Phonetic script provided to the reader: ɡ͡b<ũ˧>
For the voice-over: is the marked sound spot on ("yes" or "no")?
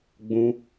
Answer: yes